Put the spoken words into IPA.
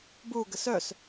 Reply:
b u ɡ ə s œ s

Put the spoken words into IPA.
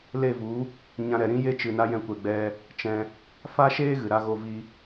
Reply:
l e˦˨ v u˨˦ | ɲ ã˧ ɾ ɛ˨ ɾ ĩ˦ j e˦ t͡ʃ ɨ˧ n a˦ j ɛ̃˦ kʷ ɛ˧ ɡ͡b ɛ˦ | t͡ʃ ɛ̃˧ | f a˦ ʃ eː˦ ɣ ɨ˨ ɾ a˧ ɣ o˧ v i˧

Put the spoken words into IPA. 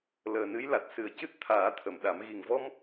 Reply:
l əː˨˩ n ɨ˧˥ j l a˨˩ t̚ s ɨ˨˩˦ ə̯ c ɨ˦˥ t̚ t̪ʰ aː˨˩˦ t̪ʰ ə˨˩˨ m ɗ a˨˩˦ m ɣ i˨˩ ŋ v ɔ˧ m

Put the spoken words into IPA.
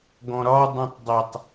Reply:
ɡ ɔ̃ ɾ ɒ dˤ õ tˤ dˤ a tˤ

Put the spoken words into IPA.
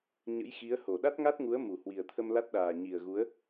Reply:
ɲ ə̰˧˥ j x i˨˦ ə̯ h o˧˩ ɗ a˦˥ t̚ ŋ a˦˥ t̚ ŋ u˨˦ ə̯ m u˧˩ h w i˨˩ ə̯ t̪ʰ ə˧ m l a˦˥ t̚ ɗ aː˨˩ ɲ i˨˩ ə̯ ɣ u˨˦ ə̯

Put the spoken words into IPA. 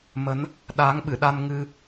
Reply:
m ə˨˦ n | ɗ aː˨˦ ŋ ɓ ɨ˧˩ ɗ a˧ n ŋ ɨ˧

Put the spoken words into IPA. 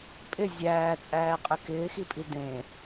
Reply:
pʼ ɪ zʲ æː t͡sʼ æː qʼ ɛ k ɪː x i pʼ i d ẽ

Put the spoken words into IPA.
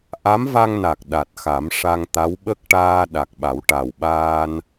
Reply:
ʔ a˧˥ m v a˧ ŋ n a˨˩ k̚ ɗ a˨˩ t̚ x a˨˩˦ m ʂ a˧ ŋ t̪ a˧˥ w ɓ ə˦˥ k̚ ʈ aː˧ ɗ a˨˩ k̚ ɓ a˨˩˦ w ʈ a˨˩ w ɓ aː˧ n

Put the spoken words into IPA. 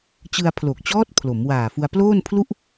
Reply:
t͡ɕ ɯ˧ a̯ pʰ l o˨˩ k̚ t͡ɕ ɔː˦˥ t̚ pʰ l o˩˦ m w aː˨˩ f u˧ a̯ p l oː˥˩ n pʰ l u˥˩ ʔ

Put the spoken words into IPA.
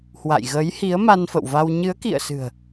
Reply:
h w a̰˧˨ j ɣ ə˨˦ j h i˨˦ ə̯ m a˧ n f ə̰˧˨ w v a˧ w ɲ ɨ˨˦ ə̯ k ḭ˧˨ ə̯ s ɨ̤˨˩ ə̯

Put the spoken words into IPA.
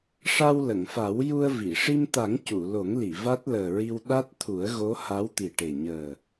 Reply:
ʂ a˧ w l ə˨˩˨ ŋ f a˨˩˦ w j u˧ ə̯ v i˨˩˨ ʂ i˧ m t̪ a˨˩˦ ŋ c u˨˩˨ l o˨˩˦ ŋ l i˨˩˨ v a˦˥ t̚ l əː˨˩ ɹ i˧ w ɗ a˦˥ t̚ t̪ʰ u˨˩˦ ə̯ ɣ o˧˥ h a˧˥ w t̪ i˨˩ ʈ e˨˩ ɲ əː˨˩

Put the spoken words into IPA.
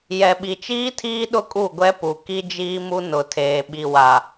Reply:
j ɛ˨ ɓ i˨ t͡ʃ iː˦ tʰ iː˦ ɗ ʊ˦ kʼ u˦˨ ɡʷ ɛ˦ p u˨ k i˦ d͡ʒ iː˦ m u˦ n ʊ˨ tʰ eː˨ ɓ i˨ w a˨

